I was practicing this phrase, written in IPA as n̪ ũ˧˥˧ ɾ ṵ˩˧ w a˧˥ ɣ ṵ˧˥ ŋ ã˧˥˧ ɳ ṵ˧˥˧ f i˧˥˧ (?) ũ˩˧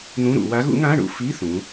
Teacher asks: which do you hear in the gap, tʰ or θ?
θ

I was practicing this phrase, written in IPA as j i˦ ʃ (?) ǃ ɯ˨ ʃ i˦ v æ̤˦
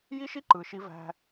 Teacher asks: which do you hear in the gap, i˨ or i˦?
i˦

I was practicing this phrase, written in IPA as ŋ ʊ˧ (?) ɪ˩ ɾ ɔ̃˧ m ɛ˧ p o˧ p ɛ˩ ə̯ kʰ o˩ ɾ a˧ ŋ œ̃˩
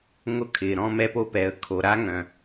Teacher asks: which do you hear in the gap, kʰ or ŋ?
kʰ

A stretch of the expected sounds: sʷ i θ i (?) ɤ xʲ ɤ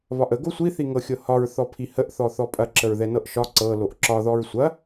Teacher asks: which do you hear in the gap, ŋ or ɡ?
ŋ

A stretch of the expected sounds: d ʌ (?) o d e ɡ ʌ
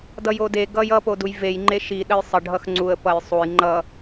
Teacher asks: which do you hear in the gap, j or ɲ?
j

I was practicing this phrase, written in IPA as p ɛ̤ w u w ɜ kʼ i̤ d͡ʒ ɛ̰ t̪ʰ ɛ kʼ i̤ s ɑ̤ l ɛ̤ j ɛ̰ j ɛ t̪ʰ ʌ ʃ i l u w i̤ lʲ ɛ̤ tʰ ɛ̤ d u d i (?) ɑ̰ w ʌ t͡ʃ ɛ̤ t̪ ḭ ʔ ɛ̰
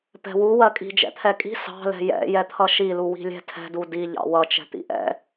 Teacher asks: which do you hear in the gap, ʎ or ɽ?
ʎ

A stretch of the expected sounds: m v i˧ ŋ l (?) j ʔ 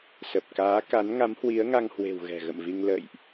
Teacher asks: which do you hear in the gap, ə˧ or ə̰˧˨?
ə̰˧˨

